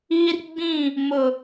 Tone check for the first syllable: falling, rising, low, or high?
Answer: high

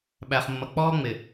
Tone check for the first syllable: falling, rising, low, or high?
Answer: low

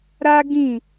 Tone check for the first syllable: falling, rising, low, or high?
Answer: high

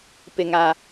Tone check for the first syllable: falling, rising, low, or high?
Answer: low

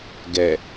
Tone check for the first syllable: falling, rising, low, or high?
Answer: low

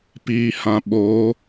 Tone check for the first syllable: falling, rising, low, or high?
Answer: low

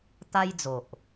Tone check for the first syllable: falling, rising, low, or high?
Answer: high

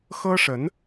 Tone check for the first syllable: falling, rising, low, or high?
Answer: high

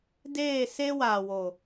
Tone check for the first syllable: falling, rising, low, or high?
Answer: falling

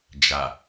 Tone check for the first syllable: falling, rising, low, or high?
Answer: low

